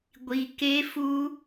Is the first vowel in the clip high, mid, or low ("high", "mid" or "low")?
high